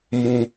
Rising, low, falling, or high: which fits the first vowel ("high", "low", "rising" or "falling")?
low